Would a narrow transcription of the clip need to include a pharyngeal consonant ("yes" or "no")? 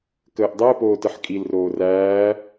yes